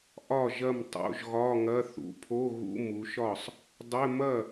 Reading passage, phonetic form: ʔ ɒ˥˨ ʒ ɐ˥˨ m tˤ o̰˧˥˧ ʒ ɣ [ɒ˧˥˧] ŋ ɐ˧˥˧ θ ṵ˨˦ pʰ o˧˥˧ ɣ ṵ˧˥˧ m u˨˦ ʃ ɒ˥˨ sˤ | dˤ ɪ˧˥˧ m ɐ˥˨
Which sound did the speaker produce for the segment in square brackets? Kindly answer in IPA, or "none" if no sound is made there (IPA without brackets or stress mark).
ɒ˧˥˧